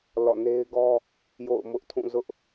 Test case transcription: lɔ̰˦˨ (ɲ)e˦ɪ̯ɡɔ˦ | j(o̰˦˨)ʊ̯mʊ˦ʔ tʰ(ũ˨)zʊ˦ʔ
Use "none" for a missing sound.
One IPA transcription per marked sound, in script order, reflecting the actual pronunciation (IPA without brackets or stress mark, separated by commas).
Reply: n, o̰˦˨, ũ˦˨